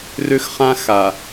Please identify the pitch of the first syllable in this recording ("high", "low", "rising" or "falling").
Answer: high